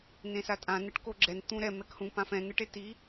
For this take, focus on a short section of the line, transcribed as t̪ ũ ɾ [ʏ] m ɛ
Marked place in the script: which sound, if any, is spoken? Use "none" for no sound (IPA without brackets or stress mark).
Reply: ɛ